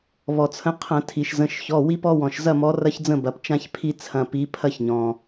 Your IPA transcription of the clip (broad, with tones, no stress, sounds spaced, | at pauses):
β ɔ˩ t͡sʰ ə̃˨˦ qʰ ɐ̃˧˩˧ tʰ i˩ ʃ z ə̃˩˧˩ ʃ ç ɔ˩˧˩ w i˦ p ɔ˦ w ɔ̃˩ ʃ z ɐ˦˨ m ɔ˨˦ r ɐ˦ ç d͡z ə̃˦˨ b ɐ˩ p t͡ʃ ã˦ ç pʰ i˦ t͡sʰ ɐ̃˩˧˩ p i˨˦ pʰ ɐ˦ ç ɲ ɔ̃˩